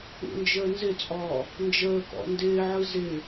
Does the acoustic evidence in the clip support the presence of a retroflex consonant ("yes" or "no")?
no